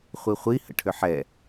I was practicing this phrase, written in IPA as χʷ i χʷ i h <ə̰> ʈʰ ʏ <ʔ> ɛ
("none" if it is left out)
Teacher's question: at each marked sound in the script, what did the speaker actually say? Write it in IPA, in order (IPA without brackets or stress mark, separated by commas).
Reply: ə̰, ħ